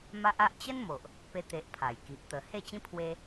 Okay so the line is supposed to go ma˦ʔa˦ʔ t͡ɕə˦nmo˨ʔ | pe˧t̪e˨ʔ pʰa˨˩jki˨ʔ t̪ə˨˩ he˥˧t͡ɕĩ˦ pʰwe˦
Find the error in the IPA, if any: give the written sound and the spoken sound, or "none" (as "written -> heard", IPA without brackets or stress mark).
none